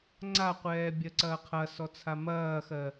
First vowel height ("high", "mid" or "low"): low